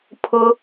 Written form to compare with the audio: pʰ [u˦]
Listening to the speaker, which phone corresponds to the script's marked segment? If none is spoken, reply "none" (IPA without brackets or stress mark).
ʊ˦